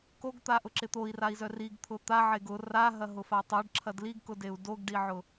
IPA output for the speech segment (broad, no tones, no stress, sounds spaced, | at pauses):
k o ɡ t̪ a ʔ ʊ ǁ ɪ t̪ o i̯ r a i̯ z œ r i ɡ t̪ʰ ʊ t̪ a ʕ e ɡ ʊ r a ɦ ɐ ɦ ʊ f a tˤ œ ɖ ǁʰ ɐ d l i ɡ k ʊ d e u̯ d o ɡ ɖ i ʕ ʊ